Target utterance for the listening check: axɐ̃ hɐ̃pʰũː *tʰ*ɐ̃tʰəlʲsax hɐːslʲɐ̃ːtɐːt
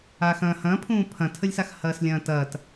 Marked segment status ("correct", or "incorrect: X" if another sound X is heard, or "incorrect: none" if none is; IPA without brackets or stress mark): incorrect: pʰ